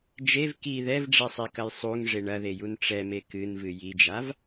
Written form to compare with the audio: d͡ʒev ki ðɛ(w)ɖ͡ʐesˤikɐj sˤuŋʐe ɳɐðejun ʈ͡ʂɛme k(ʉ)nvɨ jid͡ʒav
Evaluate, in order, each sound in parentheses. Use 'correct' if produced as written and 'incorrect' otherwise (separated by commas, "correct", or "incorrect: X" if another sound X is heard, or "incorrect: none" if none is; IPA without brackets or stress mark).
incorrect: v, incorrect: ɨ